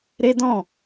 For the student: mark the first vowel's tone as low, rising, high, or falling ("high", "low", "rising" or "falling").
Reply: high